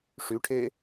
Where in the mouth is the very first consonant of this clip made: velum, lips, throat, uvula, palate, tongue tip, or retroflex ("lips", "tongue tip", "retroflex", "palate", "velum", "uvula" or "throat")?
retroflex